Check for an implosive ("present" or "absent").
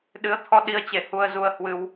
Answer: present